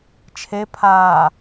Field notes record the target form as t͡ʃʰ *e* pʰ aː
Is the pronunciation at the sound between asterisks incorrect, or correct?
correct